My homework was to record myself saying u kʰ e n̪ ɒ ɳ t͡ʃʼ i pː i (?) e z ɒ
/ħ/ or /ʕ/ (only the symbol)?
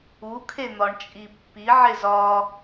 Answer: ʕ